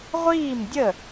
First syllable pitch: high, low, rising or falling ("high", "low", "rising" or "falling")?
falling